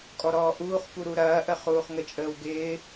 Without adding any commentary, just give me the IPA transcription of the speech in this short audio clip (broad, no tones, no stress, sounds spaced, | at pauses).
kʼ ɔ ɾ ɔː ʔ uː χ p u ɾ u ɾ ɐː ʔ ə χ uː χ ŋ ə t͡ʃʼ əː w ɡ ɪː